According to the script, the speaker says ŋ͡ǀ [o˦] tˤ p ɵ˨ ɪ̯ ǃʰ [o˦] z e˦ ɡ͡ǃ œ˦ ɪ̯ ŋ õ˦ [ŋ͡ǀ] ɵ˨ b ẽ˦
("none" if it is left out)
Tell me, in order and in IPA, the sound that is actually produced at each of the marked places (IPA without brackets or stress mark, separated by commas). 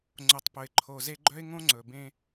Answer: o˨, o˨, ŋ͡ǀ